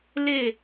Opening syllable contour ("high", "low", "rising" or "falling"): falling